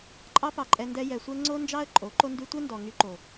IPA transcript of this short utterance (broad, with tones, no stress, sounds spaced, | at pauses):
ǃʼ ɑ˦ p ɑ˧ ǃʼ ɛ˧ n d ɛ˧ j ɛ˧ sʷ ɛ˦ ŋ͡ǀ o˦ n d͡ʒ ɑ˦ ə̯ ǃʼ o˨˦ ǃ o˧ n d y˧ tʷ ɛ˦ n d ɔ˨ ŋ y˧ ǃ o˨